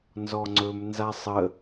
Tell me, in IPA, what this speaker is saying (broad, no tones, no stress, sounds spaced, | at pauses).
n z ɔ ŋ͡ǀ ɵ m n z a sˤ ə